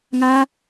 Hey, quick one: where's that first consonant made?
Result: velum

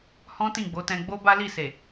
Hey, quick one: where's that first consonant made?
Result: throat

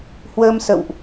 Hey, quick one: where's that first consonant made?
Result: throat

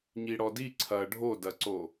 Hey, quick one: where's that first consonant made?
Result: palate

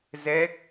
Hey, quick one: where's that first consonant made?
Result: tongue tip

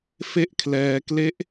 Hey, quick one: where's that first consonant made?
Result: lips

